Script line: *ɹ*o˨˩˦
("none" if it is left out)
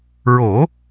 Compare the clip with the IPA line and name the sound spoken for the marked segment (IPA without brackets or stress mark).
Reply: ɹ